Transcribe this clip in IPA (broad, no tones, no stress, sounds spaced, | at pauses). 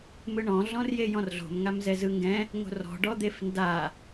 m ɯ ɳ ɔ̃ ɮ ɔ̃ r j e j ɔ̃ r ɮ o̤ m ŋ a m z ɛ z ɯ ŋ ɡ ɛ̃ | ŋ o̤ r ɔ̤ ɖ ɔ d̪ e f n d a